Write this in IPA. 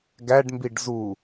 ɡ æ ɖ m b i ɖ z u

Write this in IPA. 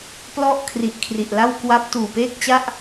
p l ɔ˥˩ ʔ kʰ r i˨˩ ʔ kʰ r i˨˩ ʔ l a˥˩ w k w a˦˥ p̚ t uː˨˩ p eː˥˩ k̚ t͡ɕ a˥˩ ʔ

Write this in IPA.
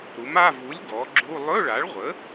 ɾ u˩˥ m a˧˥˧ v u˩˥ lʲ ɡ ɔ˩˥ ɡ͡ǁ u˧˥˧ lˠ ɵ˧˥˧ ɭ a˩˥ ɭ ʁʷ ə˩˥

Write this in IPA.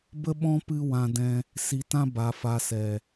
b ə˦ ɓ ɔ̃˦ p ɨ˦ w ã˧ d ɛ̃˧ | s i˧ t ã˦ b a˨ f a˨ s ɛ˨

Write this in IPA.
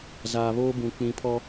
z aː˨ β oː˦ b ũ˨ k͡p ĩ˨˦ pʰ ɔ˦

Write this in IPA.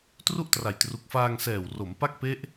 t r u˥˩ ʔ t r a˨˩ j t r u˨˩ k̚ f aː˧ ŋ s ɛː˨˩ w r o˩˦ m p a˥˩ k̚ p e˦˥ ʔ

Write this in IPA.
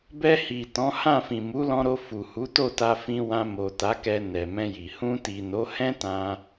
b ɛ˧ h i˨ t ɔ̃˨˦ h ã˦˨ f ĩ˨ m u˨˦ l ɔ̃˧ ɾ o˧ f u˨ h u˨˦ t o˦˨ t a˧ f ĩ˧ w ã˧ m o˨ t a˨˦ k ɛ˧ n ɛ˨ m ɛ̃˧ j i˨ h ũ˧ t i˨ n o˨˦ h ɛ̃˦ t ã˧

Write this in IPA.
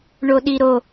ɳ o ɗ i ɾ o

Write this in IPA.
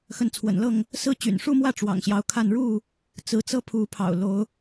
x ə˨˦ n t͡sʰ w ə̰˨˩ n l ɤ˥˨ ŋ | s ɹ̩˦ t͡ɕ y̰˨˩ n ʂ u˥˨ m w ä˥˨ ʈ͡ʂ w ɑ̰˨˩ ŋ ɕ j ɑ˨˦ ʊ̯ kʰ a˥˨ n ɻ u˥˨ | t͡s ɹ̩˨˦ t͡s ɤ˦ pʰ u˨˦ pʰ ɑ̰˨˩ ʊ̯ l o˨˦ ʊ̯

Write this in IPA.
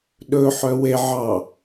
ɗ ɵ ħ œ w e ʕ ɑ

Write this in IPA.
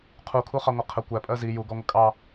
qʰ u kʰ u χ ɑ ŋʷ ə qʰ ə kʷ æ pʼ ɜ z i j u ɡ ɔ ŋʷ ə kʼ ɑ

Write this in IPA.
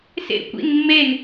s ḛ kʷ ḭ n mː e n

